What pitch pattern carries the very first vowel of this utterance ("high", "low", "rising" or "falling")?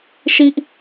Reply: low